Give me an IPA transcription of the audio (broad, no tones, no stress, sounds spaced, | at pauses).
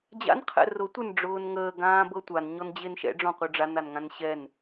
d͡ʑ a̰ n qʰ ɛ̰ r ʊ tʷ ə n ɖ͡ʐ ʊː n ŋ əː ɡ ãː b ɤ tʷ a n ɲ ɔ n d͡ʑ e n ʃ ɛ̰ ɖ͡ʐ ɔ̃ qʷ ə˞ ɖ͡ʐ a n a n ŋ ã n ɕ ɛ n